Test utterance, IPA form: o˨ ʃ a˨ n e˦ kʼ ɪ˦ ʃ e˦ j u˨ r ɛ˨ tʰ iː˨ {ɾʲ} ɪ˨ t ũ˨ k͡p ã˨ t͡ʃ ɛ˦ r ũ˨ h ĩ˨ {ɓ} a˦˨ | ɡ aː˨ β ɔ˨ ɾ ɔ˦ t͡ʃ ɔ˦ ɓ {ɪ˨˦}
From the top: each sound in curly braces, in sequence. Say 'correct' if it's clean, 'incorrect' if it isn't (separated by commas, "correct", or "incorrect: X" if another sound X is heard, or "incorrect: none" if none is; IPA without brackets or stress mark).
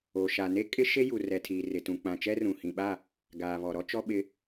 incorrect: r, correct, correct